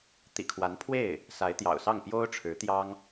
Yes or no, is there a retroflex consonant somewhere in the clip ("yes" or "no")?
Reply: yes